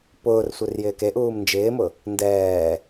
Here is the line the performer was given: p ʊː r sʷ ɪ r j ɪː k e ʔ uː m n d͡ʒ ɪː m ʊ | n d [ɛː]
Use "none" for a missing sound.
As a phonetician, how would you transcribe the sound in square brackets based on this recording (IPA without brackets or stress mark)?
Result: ɛː